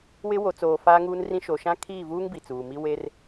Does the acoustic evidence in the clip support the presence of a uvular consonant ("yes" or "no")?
no